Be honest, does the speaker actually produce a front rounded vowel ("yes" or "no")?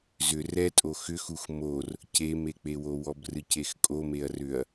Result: yes